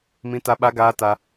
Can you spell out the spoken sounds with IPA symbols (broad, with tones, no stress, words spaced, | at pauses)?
mĩ˦ta˦ ɓa˦ɡaː˦ta˦